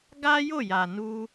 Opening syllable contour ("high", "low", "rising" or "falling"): high